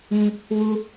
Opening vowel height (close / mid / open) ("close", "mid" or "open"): close